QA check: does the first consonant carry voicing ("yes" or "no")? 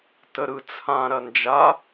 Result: no